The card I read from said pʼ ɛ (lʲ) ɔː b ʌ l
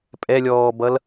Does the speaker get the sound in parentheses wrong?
no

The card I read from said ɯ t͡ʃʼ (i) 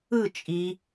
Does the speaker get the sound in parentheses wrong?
no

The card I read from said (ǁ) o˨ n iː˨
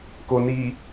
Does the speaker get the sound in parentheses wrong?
yes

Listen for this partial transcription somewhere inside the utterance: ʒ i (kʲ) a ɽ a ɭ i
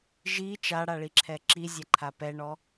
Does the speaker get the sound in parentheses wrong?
yes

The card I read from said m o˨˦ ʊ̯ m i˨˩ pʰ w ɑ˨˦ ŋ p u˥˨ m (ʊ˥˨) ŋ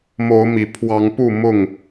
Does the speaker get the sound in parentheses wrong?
no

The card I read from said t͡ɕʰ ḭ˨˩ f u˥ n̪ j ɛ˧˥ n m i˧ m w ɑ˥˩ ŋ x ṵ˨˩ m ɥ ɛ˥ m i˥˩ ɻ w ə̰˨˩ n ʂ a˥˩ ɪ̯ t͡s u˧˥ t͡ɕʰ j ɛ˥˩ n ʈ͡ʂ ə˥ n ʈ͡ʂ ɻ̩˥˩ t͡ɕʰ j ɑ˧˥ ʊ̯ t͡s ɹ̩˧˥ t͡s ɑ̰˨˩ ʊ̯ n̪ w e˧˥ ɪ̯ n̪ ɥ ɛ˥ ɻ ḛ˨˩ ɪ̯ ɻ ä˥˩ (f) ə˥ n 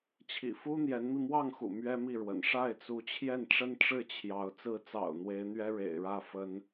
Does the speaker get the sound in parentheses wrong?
no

